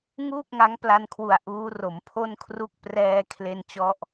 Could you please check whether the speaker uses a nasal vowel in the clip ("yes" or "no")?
no